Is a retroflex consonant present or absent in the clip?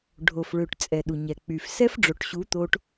present